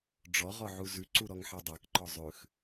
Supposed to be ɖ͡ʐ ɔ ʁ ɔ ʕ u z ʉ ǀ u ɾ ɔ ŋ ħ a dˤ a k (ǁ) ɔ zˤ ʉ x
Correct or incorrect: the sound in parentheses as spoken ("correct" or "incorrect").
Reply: incorrect